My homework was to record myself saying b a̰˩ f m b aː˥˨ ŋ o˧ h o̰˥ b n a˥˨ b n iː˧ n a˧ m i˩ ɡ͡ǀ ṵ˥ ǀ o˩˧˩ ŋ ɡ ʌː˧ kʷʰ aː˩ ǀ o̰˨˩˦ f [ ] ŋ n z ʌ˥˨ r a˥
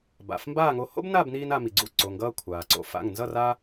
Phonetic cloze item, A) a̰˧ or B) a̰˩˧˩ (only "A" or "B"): B